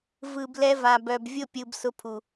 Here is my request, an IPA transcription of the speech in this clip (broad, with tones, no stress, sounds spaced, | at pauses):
v ɯ˨ b l ɛ˧ v a˨ b œ˨ b vʲ ʊ˦˨ pʲ ɯ˨ b s ʊ˧ pʰ u˨